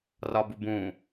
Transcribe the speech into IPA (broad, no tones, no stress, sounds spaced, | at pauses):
r ɒ b u b ũ